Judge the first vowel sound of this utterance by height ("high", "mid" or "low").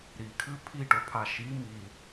high